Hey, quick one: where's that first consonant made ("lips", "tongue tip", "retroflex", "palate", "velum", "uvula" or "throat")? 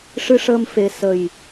retroflex